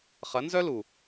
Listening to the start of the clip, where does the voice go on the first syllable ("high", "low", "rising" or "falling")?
rising